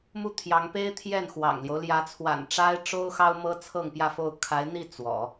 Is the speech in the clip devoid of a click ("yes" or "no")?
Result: yes